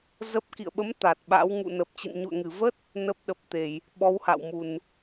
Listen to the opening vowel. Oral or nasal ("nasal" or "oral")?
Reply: oral